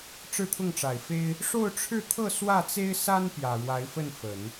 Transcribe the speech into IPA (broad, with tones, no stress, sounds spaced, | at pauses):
ʈ͡ʂ ɻ̩˥˧ t̪ʰ ʊ˥˩ ŋ ʈ͡ʂ a˨˩ ɪ̯ f e˥ ɪ̯ | ʂ o˥˧ ʊ̯ ʈ͡ʂʰ ɻ̩˥˧ t̪ʰ ɤ˥˧ s w ä˥˩ t͡s e˥ ɪ̯ s a˥ n p j ä˨˩ ɻ w a˧˥ ɪ̯ f ə˥˩ n f ə˨˩˦ n